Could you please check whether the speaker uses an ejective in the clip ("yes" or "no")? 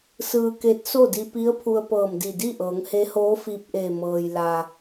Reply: no